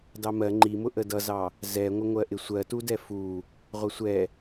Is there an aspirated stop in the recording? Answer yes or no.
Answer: no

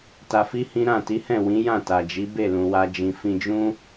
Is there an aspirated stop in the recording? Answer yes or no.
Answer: no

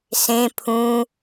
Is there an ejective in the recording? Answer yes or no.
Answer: no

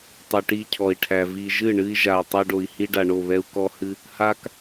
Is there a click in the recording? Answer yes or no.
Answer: no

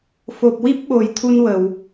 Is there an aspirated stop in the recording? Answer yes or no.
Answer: yes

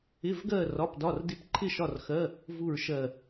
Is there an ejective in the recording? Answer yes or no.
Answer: no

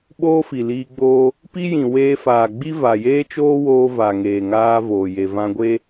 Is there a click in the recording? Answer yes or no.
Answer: no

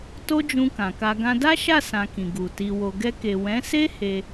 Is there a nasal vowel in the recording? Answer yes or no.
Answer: yes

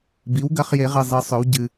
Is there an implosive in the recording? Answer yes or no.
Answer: no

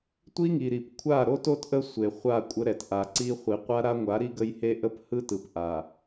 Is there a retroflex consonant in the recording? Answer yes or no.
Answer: no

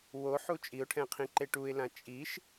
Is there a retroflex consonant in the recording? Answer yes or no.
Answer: yes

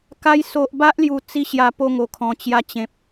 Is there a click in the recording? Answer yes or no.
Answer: no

